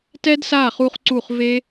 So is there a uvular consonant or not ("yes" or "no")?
yes